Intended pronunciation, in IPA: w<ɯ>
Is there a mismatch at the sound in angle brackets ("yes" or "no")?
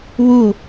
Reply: yes